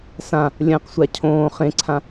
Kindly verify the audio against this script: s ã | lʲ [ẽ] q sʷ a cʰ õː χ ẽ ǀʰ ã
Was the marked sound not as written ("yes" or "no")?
yes